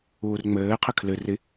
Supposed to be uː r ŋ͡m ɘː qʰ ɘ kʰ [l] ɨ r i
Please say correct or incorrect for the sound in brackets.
correct